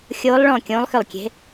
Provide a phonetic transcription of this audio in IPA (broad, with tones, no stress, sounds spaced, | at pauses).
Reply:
xʲ oː˨˦ lˠ ɭ ɔ̃ː˧˩ kʲ õː˨˦ lˠ x ʏ˧˩ lˠ kʲ e̤˨˦